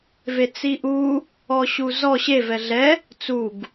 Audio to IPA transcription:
vet͡siʔu | ɔɕuzɔ ɕev ɛɮɛ | t͡suɡ

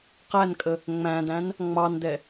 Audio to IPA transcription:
qænkʼə | ŋ͡mæ̃dæ̃n | ŋ͡mɑndɛ

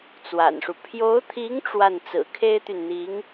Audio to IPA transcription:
t͡swa̰˨˩nʂu˦ pʰjo˧˥ʊ̯t̪ʰi˧˥ŋ ʈ͡ʂwa˥˩n t͡sɹ̩˨˩kʰe˥ɪ̯t̪y˨nn̪i˧˥ŋ

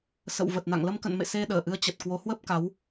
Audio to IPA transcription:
sə̰˧˨wvə˨˩t̚na̰˧˨ŋ lə˧mkə̰˧˨nmḛ˧˨ se˧ɗəː˧˩ʔɨ˨˦ə̯ t͡ɕə˨˩t̚kwo˨˦hwə˦˥p̚ ka˨˦w

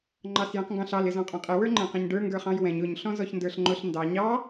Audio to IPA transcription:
ŋ͡ǃɑsjɛ̃qŋɡɑ̃ɬɑl ɪzɔ̃qʼɔ̃qʼɪ wə˞ŋ͡ǃɛ̃qɛ̃ɲɖə˞ ŋɡə˞χɑ̃jwɛ̃ɲ ʊɲ ɬɔ̃zɔçndə˞ɬŋ͡ǃʊɬ ndɑ ɲɑ

